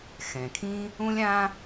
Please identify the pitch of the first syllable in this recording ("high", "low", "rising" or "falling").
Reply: low